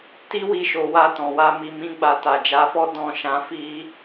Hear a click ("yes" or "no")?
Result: no